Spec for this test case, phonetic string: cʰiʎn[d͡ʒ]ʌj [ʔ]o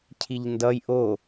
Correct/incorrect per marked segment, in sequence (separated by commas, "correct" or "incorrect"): incorrect, correct